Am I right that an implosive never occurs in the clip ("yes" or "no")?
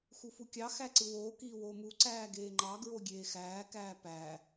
yes